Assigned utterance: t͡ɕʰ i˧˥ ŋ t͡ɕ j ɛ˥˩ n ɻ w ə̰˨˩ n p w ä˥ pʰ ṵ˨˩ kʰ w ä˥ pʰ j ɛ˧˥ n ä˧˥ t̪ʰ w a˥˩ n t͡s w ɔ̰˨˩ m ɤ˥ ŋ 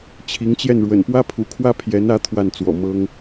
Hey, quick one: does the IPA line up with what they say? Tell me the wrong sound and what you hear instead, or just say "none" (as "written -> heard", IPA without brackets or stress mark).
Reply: none